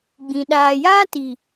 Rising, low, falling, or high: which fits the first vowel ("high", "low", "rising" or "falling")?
low